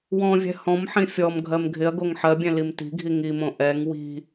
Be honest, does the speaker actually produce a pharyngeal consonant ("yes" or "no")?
yes